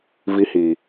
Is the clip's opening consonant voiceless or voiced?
voiced